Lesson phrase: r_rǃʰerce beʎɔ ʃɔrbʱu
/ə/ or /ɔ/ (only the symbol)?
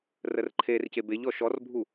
ə